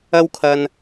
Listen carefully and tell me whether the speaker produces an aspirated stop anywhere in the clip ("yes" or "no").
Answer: yes